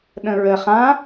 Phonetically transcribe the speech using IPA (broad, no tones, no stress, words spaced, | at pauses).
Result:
ɗə̃ɹə χã